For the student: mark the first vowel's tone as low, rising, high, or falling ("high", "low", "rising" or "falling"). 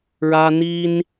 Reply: high